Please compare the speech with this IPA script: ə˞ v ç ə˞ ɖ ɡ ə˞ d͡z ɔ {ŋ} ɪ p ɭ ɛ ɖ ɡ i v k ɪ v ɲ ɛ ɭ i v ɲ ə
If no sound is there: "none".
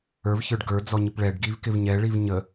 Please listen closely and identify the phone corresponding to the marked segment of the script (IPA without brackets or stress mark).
ɲ